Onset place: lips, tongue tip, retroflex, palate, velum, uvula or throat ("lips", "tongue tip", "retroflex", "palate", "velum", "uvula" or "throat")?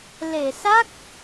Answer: tongue tip